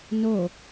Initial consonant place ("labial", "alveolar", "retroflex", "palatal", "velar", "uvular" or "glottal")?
alveolar